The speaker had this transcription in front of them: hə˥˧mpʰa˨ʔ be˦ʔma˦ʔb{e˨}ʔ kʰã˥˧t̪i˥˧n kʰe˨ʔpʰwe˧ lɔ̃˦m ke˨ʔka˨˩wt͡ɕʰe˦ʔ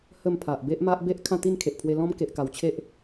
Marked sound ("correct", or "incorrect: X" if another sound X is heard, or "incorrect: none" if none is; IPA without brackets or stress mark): incorrect: e˦